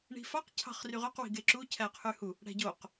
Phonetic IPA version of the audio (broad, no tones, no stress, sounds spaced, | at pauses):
ɳ i̤ f ɑ q cʰ ɑ̤ χ r y ʁ ø q w i̤ ɡ e ǁ u cʰ æ qʰ y h u | ɽ æ̤ ɟ o q